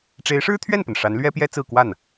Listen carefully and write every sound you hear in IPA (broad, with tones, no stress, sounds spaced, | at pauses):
ʈ͡ʂ e˧˥ ɪ̯ ʂ ɻ̩˥ t̪ʰ ɥ ɛ˥˩ n p ə˩ n ʂ a˧˥ n l ɥ ɛ˥ p j ɛ˥ t͡s ɹ̩˥˧ k w a˥˩ n